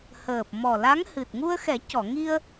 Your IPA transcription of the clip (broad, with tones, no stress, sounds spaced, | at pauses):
h əː˨˩ p̚ m ɔ˨˩ l a˧˥ ŋ h ɨ˨˩ t̚ ŋ u˧ ə̯ x ɛ˨˩˦ c ɔ˨˩˨ ŋ i˧ ə̯